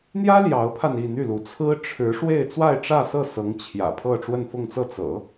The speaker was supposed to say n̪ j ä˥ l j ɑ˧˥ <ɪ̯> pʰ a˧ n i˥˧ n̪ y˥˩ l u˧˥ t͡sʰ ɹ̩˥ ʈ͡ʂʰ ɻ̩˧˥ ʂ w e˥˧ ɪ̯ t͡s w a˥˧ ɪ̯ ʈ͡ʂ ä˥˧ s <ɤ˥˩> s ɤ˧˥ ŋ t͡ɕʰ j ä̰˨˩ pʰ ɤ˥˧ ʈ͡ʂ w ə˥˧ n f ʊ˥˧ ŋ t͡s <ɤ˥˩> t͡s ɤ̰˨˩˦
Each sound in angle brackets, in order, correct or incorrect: incorrect: ʊ̯, correct, correct

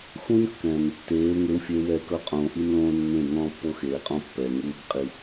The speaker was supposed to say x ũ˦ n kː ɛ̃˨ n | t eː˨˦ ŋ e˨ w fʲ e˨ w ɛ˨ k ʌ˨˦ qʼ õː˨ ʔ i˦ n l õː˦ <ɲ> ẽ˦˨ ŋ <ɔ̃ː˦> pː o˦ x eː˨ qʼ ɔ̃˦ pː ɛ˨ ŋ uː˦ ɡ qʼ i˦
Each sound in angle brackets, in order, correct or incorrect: incorrect: nː, correct

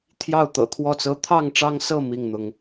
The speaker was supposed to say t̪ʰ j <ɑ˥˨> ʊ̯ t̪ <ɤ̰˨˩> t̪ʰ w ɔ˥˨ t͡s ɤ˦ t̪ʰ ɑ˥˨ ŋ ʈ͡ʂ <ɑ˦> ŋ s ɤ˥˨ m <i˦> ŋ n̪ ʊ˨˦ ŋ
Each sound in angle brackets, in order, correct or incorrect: correct, correct, correct, incorrect: i˥˨

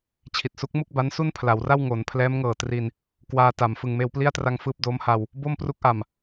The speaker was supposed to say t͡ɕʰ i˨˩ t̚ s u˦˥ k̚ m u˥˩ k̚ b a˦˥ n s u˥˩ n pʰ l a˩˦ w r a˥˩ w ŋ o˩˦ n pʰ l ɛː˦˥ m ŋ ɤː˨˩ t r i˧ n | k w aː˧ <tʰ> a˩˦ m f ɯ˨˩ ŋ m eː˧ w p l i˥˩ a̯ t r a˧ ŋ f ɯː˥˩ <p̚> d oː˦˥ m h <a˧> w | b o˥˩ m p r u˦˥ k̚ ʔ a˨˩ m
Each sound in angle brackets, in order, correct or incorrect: incorrect: t, correct, correct

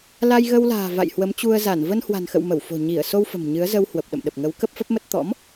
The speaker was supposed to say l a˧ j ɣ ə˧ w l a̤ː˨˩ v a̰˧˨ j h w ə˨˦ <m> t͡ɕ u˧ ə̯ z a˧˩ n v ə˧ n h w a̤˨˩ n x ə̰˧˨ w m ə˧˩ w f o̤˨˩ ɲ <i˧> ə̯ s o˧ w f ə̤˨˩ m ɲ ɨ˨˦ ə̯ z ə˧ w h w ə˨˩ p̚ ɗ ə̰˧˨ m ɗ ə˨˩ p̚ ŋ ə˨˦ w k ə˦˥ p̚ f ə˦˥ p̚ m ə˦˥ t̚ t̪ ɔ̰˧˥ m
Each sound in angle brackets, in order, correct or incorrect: correct, incorrect: i˧˩

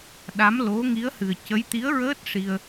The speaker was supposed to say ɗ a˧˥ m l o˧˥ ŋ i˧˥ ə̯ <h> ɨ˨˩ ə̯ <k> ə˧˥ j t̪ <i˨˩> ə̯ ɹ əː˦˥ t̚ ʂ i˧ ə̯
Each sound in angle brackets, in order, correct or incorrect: correct, incorrect: c, incorrect: i˧˥

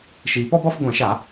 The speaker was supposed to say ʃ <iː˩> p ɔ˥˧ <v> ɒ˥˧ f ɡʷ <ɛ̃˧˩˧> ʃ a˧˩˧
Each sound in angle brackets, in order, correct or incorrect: correct, incorrect: b, correct

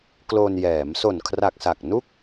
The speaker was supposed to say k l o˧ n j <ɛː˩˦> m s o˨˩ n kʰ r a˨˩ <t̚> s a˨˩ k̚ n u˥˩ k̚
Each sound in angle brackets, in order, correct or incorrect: correct, incorrect: k̚

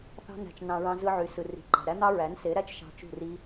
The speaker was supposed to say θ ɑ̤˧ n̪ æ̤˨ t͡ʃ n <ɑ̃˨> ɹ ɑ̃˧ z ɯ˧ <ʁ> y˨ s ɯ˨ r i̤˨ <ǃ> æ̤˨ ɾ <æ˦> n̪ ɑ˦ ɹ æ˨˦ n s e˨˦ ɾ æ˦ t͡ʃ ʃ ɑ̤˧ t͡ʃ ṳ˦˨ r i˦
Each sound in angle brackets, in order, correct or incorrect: correct, incorrect: ʕ, correct, correct

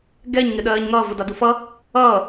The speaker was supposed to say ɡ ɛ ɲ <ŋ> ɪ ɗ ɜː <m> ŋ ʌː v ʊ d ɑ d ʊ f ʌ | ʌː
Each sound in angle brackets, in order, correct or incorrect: correct, incorrect: ɲ

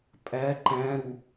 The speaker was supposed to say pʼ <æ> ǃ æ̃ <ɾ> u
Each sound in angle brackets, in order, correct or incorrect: correct, correct

